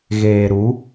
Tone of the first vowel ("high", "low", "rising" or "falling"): low